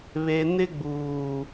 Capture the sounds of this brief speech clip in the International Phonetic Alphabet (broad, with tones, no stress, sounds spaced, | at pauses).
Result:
β e˨ n ɪ˦ ɡ͡b uː˨